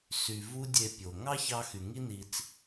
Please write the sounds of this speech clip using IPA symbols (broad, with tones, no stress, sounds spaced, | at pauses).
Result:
s y˨ v u˦ dʲ e˧ pʲ o˨ ŋ ɑ˦ ç ɑ˧ x y˨ ŋ i˦ n i˧ t͡s